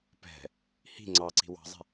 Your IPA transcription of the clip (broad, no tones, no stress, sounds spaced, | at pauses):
p ɛ̤ | h i̤ ŋ͡ǀ ɑ ǀ i̤ w ɑ̤ zˤ ɛ̤